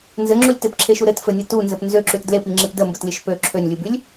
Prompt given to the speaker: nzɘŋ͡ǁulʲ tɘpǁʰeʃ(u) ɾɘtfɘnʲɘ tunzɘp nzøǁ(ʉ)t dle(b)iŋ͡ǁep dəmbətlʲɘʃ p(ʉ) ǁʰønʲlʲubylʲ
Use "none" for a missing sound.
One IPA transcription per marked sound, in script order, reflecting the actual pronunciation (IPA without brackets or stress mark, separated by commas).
u, ʉ, p, ø